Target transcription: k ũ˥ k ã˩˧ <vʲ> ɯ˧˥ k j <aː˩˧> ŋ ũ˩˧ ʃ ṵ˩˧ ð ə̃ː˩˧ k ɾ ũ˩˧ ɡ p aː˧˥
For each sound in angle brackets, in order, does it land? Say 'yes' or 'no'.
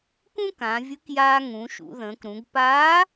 yes, no

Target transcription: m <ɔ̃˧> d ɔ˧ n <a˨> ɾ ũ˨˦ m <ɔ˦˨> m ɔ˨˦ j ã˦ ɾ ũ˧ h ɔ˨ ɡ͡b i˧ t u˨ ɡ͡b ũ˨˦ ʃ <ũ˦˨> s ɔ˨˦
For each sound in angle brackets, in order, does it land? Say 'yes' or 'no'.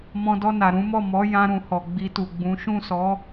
yes, yes, yes, yes

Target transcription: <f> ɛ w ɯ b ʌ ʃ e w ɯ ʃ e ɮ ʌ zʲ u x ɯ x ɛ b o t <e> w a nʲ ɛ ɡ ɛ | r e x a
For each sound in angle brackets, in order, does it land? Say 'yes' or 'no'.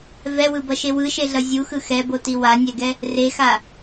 no, no

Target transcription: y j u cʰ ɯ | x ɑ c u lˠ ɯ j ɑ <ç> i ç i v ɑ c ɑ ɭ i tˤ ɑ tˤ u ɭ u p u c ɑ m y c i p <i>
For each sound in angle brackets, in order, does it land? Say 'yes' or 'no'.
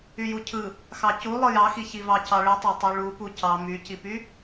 no, no

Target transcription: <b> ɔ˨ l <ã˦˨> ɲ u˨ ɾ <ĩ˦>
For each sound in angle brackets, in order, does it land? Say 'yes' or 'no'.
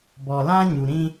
yes, no, yes

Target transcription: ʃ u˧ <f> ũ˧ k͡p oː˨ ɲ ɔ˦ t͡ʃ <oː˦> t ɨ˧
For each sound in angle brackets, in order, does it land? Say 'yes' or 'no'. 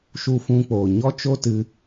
yes, no

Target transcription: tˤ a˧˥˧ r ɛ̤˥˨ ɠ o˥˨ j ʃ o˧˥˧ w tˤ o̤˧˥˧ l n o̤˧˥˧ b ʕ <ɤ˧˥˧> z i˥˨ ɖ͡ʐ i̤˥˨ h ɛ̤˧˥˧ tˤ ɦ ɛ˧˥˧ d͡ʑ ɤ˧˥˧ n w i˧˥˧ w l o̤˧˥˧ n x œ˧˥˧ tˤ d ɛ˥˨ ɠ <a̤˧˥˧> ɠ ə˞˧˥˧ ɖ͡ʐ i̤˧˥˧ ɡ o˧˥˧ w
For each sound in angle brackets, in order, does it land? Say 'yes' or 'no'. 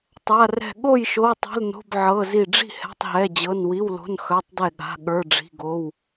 yes, yes

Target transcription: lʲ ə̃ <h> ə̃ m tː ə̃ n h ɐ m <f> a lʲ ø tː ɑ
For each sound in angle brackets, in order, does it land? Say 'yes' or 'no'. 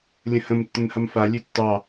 yes, yes

